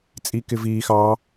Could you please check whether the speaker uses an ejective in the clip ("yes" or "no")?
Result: yes